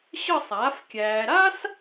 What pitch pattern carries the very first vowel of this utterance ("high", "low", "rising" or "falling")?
falling